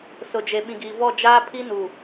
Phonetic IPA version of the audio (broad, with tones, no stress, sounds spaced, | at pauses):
s ʊ˨ d͡ʒ e˨ ɓ ĩ˨ ɡ iː˨ v ɔ˦˨ d͡ʒ aː˦ pʰ i˦ n u˨